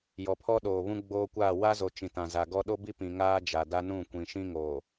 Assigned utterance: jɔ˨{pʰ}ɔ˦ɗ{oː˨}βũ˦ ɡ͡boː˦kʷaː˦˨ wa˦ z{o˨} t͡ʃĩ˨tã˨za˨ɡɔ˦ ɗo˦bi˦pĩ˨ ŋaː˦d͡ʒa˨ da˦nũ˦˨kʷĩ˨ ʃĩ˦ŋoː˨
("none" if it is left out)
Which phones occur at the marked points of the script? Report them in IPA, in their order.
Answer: pʰ, oː˨, o˨

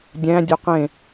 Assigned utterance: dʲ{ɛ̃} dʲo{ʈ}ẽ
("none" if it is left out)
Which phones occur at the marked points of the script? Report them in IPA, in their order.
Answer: æ̃, q

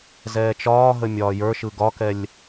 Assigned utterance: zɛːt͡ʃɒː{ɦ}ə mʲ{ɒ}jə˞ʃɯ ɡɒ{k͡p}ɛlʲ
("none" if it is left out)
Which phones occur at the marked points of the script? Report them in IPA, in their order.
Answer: ɦ, ɒː, k

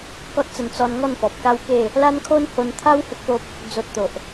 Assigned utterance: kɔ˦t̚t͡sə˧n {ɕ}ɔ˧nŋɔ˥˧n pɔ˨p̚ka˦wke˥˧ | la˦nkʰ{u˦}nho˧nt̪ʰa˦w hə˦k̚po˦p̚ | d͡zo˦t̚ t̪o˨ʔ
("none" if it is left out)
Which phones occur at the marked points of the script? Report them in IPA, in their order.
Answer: t͡s, o˦

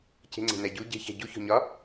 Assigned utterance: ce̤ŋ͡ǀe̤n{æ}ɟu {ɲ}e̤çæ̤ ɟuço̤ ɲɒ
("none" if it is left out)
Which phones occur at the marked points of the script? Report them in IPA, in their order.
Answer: æ, ɟ

